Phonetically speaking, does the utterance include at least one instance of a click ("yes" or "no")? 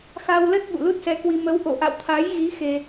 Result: no